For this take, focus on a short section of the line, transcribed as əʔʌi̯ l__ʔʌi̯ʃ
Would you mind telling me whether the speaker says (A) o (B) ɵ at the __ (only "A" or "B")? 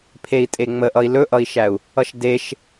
B